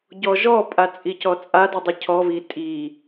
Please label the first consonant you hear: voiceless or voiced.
voiced